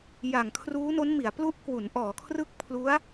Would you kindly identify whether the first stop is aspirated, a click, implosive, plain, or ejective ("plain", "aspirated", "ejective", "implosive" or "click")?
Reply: aspirated